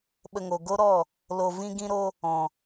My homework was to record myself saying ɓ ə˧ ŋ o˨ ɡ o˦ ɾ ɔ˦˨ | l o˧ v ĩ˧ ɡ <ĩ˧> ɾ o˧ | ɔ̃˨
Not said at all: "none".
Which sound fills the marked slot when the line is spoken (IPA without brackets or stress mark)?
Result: ĩ˧